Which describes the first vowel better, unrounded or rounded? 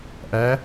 unrounded